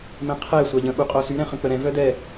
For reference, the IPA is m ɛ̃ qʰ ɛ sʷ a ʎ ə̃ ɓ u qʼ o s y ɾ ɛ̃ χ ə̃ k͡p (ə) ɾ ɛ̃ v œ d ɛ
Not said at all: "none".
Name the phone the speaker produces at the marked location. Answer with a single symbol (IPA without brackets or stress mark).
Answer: ə